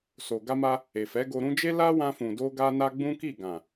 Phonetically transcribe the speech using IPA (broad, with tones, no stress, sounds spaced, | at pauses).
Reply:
s o˨ ɡ a˧ m a˧ | e˨ f ɛ˨˦ ɡ o˧ ɾ ũ˦ d͡ʒ e˦ l a˦ w ã˧ f ũ˨ d o˧ ɡ a˧ n a˧ ɡ͡b ũ˦ k i˦˨ ɡ ã˨